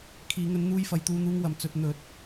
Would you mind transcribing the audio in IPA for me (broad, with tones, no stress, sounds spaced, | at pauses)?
kʰ iː˨˧ ŋ ɵ˧ n n̪ uː˧ j f ɐ˨˧ j t̪ uː˨˧ n̪ uː˧ ŋ w ɐ˨˩ m t͡s ɵ˨ t̚ n̪ ɵ˨˥ t̚